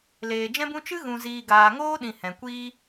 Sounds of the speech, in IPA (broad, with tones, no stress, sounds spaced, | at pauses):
l eː˨ d͡ʒ ɛ̃˦ b ũ˦ t͡ʃ ɨ˦ ɣ ũ˨ z iː˨ ɡ aː˨ ŋ oː˦ ɗ ĩ˨ h ɛ̃˨ kʷ iː˦